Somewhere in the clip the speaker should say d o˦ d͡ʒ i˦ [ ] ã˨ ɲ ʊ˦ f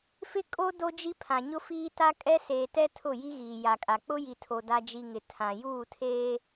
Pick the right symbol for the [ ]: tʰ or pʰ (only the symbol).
pʰ